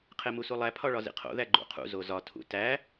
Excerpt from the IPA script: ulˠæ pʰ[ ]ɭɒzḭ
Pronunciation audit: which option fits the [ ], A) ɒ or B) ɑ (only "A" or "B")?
A